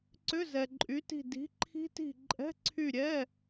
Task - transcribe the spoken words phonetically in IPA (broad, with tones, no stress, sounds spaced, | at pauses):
ǀ ʏ˧˥˧ z ɛ˨ ǃʼ y˨˥ t i̤˦˨ d i̤˨˥ ǃʰ i̤˦˥ t i̤˦˨ ǃʼ ɛ̤˧˥˧ ǀʰ y˦˨ ɾʲ ɛ˧˥˧